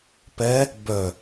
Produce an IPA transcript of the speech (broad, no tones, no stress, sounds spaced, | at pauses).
p ɛ | b œ